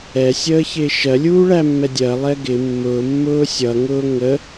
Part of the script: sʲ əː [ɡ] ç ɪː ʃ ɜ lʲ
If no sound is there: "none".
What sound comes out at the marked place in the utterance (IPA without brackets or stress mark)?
none